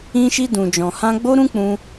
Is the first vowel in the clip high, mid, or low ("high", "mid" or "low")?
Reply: high